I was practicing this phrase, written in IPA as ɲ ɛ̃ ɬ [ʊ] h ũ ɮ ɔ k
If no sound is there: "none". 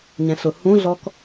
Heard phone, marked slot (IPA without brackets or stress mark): ʊ